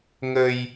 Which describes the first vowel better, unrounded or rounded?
unrounded